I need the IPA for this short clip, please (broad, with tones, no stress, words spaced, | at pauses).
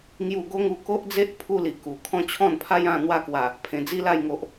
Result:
ŋju˥˧ ɡo˦ŋu˧ko˦ʔd͡ze˦ʔ pʰu˦li˨˩ku˨˩ kʰɔ̃˦t͡ɕʰɔ̃˥˧npʰa˦jã˥˧ n̪wa˥˧kwa˨˩ | pʰẽ˨˩d͡zi˦la˥˧jŋo˨ʔ